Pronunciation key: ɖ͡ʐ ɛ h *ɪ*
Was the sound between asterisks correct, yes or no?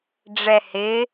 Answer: yes